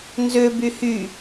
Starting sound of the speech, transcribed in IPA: n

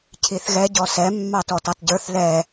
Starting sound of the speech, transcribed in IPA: cʰ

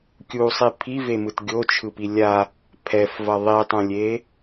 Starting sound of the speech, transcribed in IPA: kʲ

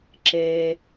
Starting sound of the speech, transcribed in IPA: ǁ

